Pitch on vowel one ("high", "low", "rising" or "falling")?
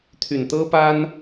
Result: low